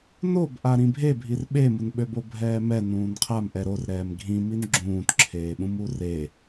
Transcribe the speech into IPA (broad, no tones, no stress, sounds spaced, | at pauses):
n o b ʔ a ɾ ĩ bʱ e bʱ i r ɓ e m u n ɓ ø b o bʱ ɛː m ɛ n ũː n qʰ a m ʔ ɛ ɾ o r ɾ ɛː m ɡʱ ĩ m i n ɡ͡ǁ ũː t ǁʰ eː ɓ ũ m u r e